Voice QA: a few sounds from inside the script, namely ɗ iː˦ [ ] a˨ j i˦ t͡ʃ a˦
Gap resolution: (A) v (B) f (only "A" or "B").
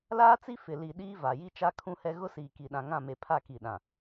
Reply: A